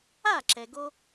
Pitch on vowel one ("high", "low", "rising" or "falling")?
falling